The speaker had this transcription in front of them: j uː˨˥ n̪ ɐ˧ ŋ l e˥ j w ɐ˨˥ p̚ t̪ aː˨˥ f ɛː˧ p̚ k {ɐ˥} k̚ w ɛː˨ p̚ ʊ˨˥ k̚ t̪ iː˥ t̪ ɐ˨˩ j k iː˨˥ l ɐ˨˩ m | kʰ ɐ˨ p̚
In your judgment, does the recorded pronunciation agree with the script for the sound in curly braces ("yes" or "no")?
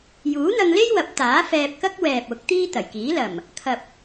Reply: yes